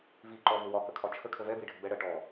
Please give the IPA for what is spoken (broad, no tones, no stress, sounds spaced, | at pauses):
v i ǃ ɔ v ʊ w ɒ k ə kʰ ɒ t͡ʃʰ ə kʰ ə v ɛ b i ɖʱ ə b ɛ ɽ ɜ ʈ ɔ